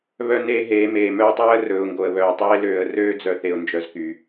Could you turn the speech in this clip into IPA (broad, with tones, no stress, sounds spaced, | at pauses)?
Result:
β œ˦ n eː˦ ɦ eː˨˦ m eː˨ m œː˦ tˤ ɵː˦ ə̯ r ɵː˨ ʊ̯ ŋ ɡ o˨ ə̯ β œː˨ tˤ eː˦ l øː˨ ə̯ r øː˦ d͡z œ˨ θ e˨ ʊ̯ n d͡ʒ œ˨ z k y˨